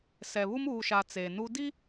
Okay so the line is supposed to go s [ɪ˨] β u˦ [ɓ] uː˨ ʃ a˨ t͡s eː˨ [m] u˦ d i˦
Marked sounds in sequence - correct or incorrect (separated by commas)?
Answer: incorrect, incorrect, incorrect